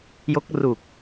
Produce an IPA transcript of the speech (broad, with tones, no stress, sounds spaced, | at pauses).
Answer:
j o˦˥ k̚ r u˨˩ k̚